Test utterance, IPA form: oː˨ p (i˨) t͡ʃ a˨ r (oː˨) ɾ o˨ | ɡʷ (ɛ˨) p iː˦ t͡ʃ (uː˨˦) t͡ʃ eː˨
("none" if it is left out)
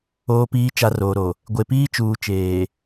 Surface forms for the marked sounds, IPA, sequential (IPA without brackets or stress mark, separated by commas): iː˨, oː˨, e˨, uː˨